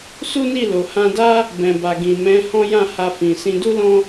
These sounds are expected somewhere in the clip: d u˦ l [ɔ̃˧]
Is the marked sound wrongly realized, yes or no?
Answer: yes